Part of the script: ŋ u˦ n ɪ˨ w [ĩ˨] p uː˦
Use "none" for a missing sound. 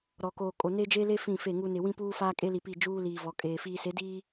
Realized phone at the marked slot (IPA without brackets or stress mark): ĩ˦